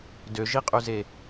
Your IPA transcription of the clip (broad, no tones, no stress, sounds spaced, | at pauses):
d ø ʒ i qʼ y z e